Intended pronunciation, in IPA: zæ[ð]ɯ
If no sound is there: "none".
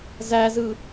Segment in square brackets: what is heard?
z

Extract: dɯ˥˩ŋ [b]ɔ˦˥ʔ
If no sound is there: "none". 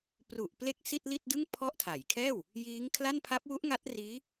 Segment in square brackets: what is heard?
pʰ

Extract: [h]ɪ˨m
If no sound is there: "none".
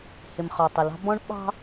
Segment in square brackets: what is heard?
h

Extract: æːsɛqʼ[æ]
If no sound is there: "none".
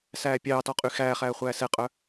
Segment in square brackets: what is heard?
œ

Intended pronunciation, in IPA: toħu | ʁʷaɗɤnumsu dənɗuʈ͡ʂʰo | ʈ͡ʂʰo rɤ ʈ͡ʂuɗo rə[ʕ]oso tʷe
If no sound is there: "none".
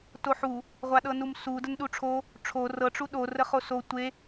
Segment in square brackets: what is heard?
χ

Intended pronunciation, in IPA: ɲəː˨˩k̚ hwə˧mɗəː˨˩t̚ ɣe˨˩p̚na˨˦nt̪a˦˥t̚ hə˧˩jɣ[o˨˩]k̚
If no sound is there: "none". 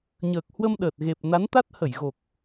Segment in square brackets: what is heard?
o˨˩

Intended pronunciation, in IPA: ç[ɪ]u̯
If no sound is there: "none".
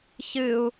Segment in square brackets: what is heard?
ɨ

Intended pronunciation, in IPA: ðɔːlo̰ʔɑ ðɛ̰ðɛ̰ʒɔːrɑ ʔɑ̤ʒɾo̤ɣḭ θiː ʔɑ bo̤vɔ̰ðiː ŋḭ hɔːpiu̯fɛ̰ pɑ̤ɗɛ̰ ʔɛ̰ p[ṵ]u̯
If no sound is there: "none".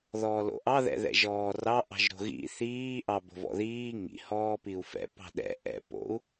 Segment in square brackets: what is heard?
o̰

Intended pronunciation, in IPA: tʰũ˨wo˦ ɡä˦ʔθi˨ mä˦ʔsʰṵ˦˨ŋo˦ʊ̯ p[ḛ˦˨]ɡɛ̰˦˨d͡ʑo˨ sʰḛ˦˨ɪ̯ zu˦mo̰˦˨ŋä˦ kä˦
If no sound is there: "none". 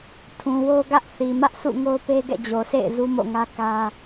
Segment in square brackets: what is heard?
e˦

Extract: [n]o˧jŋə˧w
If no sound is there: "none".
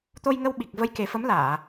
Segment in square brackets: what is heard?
t̪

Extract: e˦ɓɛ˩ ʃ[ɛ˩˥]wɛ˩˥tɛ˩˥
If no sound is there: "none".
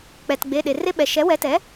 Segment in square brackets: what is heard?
ɛ˩˥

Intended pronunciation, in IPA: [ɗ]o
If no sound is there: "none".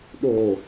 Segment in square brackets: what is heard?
ɗ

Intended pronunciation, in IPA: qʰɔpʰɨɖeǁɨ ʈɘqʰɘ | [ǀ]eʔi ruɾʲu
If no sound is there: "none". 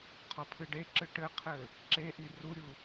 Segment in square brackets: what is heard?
ǁ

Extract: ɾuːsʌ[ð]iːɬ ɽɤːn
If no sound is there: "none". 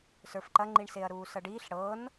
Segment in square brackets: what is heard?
ɖ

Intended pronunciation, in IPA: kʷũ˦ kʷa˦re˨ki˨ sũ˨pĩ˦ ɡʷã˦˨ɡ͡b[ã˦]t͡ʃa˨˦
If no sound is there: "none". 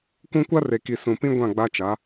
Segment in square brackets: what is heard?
a˦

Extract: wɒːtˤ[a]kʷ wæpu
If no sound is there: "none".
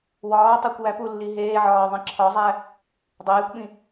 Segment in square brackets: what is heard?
æ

